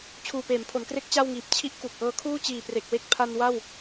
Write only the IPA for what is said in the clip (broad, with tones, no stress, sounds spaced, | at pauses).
t͡ɕʰ uː˨˩ p eː˩˦ m pʰ o˩˦ n k r e˦˥ k̚ t͡ɕ a˥˩ w ŋ iː˨˩ p̚ t͡ɕʰ i˥˩ ʔ k u˨˩ k̚ ʔ ɤː˦˥ kʰ uː˥˩ t͡ɕ iː˨˩ p r e˨˩ k̚ w e˦˥ k̚ pʰ a˧ n w a˥˩ w